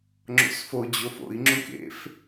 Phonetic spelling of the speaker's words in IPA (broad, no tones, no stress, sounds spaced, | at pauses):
ŋ͡ǁ o̰ s f o d͡ʑ o f o̰ i̯ ŋ͡ǁ ũ k ḛ f